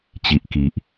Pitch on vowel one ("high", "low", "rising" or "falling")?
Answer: low